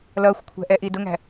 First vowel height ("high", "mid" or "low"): mid